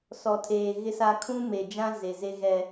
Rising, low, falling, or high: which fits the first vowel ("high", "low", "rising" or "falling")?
low